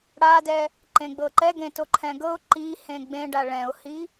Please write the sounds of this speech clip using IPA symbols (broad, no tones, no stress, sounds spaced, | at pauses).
ɽ a d ɛ | ǃ ẽ ɡ͡b ɤ ǃ ɛ ɡ ẽ t o ǃʰ ɛ̃ ɡ ɤ ʊ̯ ǃ i h ẽ ɡ͡b ẽ ɖ a ɭ ɛ̃ ʊ̯ h i